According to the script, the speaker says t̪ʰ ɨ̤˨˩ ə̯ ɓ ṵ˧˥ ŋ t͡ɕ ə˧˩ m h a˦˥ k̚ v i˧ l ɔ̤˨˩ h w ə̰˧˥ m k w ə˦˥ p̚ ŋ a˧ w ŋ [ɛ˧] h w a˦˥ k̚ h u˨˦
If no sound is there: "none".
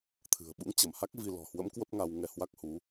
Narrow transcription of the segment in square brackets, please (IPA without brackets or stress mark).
ɛ˧